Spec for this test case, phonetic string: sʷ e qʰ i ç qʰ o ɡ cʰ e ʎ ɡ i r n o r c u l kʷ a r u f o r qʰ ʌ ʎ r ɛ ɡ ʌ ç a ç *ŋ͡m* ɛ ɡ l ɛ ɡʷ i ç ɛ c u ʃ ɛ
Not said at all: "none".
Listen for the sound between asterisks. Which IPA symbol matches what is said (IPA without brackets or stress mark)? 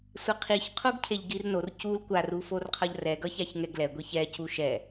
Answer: ŋ